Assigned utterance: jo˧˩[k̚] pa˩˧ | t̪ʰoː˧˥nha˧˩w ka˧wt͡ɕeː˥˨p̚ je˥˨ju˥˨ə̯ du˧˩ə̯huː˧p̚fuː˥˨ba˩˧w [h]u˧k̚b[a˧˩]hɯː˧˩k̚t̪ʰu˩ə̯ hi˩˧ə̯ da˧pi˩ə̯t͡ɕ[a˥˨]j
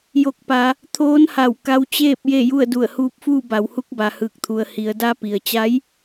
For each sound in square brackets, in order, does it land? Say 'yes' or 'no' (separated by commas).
yes, yes, no, no